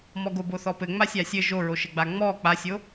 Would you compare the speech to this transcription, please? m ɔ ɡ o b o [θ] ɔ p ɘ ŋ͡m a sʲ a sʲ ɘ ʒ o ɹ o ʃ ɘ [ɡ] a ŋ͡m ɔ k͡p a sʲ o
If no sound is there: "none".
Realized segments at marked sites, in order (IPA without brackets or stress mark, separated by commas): θ, ɡ͡b